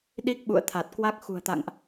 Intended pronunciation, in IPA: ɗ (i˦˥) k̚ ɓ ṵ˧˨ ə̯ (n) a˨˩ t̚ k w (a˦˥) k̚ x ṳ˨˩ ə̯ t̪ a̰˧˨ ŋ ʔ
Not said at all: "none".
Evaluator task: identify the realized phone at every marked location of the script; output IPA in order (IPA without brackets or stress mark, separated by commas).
i˦˥, t̪ʰ, a˦˥